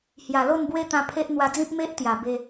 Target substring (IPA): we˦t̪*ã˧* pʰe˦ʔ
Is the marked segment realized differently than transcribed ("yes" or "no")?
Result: no